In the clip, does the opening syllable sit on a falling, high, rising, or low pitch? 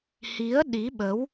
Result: rising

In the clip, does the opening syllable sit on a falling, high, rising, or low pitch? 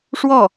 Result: falling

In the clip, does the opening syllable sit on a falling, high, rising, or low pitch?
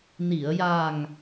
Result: low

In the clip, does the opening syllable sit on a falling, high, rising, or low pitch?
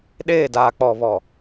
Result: falling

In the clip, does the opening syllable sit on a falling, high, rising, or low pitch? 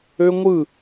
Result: high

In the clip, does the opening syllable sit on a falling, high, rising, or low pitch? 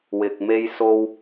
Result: low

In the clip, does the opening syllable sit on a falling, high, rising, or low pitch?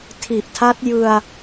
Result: low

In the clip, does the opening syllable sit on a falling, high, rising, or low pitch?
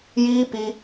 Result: high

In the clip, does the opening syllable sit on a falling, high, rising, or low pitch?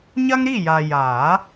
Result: high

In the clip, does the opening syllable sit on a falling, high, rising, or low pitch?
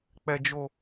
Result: low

